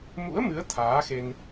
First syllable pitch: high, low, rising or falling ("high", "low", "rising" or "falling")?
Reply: rising